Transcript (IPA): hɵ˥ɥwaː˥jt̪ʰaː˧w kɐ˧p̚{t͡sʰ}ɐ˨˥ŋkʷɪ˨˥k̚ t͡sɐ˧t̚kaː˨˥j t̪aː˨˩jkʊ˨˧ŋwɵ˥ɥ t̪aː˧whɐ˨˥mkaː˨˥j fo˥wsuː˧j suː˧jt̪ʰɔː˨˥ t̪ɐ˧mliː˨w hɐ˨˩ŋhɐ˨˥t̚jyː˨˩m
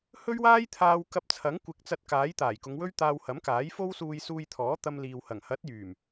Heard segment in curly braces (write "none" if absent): t͡sʰ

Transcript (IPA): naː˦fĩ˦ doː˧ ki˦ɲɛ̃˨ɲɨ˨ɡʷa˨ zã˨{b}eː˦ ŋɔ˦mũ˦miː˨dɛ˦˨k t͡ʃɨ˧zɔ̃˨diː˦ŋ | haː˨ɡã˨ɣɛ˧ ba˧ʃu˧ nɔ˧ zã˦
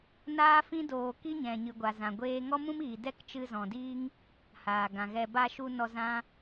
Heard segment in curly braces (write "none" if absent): ɡʷ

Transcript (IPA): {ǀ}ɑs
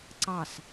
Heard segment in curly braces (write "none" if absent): ǀ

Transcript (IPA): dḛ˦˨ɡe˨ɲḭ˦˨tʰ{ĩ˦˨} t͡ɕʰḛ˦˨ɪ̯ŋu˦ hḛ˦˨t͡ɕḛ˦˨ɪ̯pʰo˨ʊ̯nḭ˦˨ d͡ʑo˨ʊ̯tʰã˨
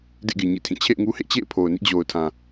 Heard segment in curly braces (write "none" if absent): ĩ˦˨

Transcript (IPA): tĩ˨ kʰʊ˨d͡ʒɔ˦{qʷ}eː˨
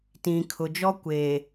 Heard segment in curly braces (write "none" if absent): kʷ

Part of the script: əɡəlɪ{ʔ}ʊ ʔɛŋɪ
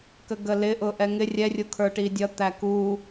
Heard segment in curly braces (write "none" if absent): ʔ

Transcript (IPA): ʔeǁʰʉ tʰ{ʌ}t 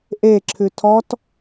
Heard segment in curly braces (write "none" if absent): ɔ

